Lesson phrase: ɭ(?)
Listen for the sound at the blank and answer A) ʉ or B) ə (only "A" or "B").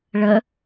B